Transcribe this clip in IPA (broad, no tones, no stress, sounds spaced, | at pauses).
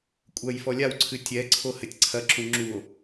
kʷʼ ɐ j f ɔ lʲ a w ǀʰ ɨ tʲ ɛ ǀʰ o h ɘ tʲ ǀʰ ɐ ǁ ũ ŋ͡ǁ u o̯